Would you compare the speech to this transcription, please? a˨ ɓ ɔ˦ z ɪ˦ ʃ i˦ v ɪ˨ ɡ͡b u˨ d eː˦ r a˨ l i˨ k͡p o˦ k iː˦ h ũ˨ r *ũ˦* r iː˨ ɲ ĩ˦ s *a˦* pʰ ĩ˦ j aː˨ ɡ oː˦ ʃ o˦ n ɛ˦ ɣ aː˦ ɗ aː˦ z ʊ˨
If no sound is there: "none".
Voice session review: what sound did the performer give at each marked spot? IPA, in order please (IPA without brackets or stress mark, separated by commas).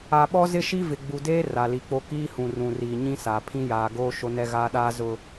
ũ˨, a˨